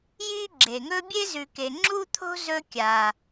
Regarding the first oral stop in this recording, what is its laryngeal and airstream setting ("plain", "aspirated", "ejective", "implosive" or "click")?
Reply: click